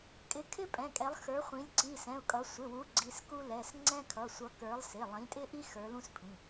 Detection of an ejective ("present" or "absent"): present